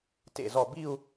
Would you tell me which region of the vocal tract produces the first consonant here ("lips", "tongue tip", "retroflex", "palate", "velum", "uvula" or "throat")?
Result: tongue tip